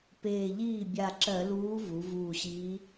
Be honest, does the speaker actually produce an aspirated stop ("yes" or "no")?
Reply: no